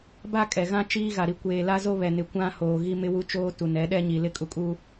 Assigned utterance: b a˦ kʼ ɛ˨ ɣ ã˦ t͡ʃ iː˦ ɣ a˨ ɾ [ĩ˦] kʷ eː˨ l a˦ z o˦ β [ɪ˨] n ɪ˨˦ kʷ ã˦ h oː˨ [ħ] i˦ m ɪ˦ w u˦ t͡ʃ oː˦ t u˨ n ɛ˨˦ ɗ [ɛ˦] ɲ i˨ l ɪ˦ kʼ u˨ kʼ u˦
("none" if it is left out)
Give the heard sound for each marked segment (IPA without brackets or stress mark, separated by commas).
i˦, ɛ˨, ɣ, ɛ˦